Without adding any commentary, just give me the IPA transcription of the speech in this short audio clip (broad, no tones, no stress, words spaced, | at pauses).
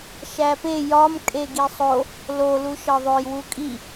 ʃæpe jɒm kʼeɡisˤo | lo luʃɒðˤoj wukʼi